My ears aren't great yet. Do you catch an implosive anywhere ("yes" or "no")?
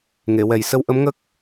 no